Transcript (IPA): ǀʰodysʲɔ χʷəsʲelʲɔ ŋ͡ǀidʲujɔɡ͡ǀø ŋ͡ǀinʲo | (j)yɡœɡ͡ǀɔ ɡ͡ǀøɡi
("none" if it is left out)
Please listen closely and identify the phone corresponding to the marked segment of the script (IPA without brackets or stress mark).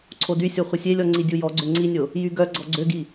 j